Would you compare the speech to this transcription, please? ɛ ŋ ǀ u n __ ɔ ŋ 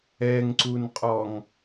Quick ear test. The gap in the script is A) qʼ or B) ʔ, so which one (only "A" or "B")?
A